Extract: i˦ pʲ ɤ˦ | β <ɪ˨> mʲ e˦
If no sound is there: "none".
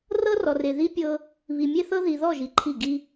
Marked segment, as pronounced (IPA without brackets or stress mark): i˨